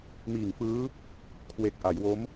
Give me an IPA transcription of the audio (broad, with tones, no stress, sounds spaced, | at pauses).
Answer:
m iː˨˩ ŋ f ɯː˦˥ | kʰ w e˨˩ k̚ ʔ a˩˦ j w o˦˥ m